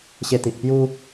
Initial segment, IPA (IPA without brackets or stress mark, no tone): ɕ